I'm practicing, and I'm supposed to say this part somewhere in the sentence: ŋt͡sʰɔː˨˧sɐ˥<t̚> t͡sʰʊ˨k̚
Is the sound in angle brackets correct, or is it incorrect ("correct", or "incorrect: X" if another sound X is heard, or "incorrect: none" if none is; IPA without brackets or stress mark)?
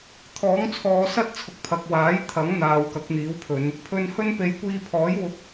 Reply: correct